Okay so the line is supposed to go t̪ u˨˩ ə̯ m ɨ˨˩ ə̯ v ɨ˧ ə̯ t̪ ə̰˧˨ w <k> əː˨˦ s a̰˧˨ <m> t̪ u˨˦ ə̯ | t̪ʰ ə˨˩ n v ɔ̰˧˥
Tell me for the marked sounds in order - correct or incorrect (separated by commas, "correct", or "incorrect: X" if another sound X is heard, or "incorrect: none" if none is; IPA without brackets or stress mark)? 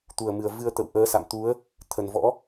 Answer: incorrect: ʔ, correct